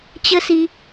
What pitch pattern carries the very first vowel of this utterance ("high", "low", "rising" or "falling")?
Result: high